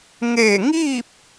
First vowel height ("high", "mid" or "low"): mid